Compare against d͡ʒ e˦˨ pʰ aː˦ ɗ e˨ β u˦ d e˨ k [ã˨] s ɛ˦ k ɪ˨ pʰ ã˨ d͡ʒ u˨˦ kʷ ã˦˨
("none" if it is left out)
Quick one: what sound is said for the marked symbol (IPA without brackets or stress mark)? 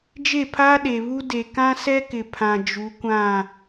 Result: ã˦